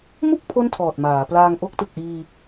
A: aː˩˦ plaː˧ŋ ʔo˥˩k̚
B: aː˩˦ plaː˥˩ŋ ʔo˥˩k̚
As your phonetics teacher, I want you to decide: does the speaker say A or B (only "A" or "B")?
A